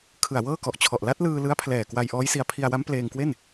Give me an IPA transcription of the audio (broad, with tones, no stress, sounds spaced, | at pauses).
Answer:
kʰ ɯ˨˩ a̯ w ɤː˥˩ k ɔ˨˩ ʔ t͡ɕʰ ɔ˨˩ ʔ l a˦˥ t̚ l ɯː˧ l ɯ˦˥ a̯ pʰ l ɛː˨˩ k w a˧ j ʔ ɔː˦˥ j s i˧ a̯ pʰ i˧ a̯ w a˦˥ m p l eː˧ ŋ k w e˥˩ n